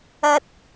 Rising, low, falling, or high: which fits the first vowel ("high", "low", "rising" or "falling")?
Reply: high